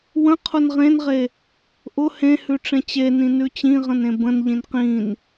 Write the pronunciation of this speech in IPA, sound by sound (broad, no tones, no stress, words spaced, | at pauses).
wə̃qʰʊn ʁẽnʁe | ʔʊ hẽhʉ ʈ͡ʂẽt͡ɕenĩ nʉt͡ɕĩʁə̃n ẽbə̃nʎĩn qĩn